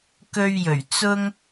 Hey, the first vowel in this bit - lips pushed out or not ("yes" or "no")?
yes